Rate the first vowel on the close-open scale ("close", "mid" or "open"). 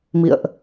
close